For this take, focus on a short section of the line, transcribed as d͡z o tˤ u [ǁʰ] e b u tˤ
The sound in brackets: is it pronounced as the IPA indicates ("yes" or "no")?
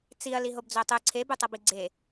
no